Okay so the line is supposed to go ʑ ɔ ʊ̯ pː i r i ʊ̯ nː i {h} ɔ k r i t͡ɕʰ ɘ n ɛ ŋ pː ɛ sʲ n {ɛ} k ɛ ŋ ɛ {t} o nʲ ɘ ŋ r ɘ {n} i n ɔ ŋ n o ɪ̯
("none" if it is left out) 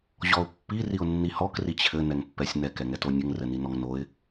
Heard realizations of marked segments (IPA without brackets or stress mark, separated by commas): h, ɛ, t, n